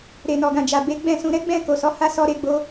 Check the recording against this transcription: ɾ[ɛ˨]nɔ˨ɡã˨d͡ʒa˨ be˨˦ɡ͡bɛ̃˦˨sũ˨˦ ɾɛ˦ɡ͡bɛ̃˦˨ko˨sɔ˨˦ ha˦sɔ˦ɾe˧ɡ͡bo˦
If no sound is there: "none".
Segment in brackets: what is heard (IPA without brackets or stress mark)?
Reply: e˨